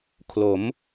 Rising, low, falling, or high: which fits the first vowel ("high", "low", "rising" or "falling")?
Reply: rising